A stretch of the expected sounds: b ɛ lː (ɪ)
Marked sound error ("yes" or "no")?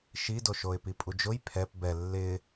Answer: no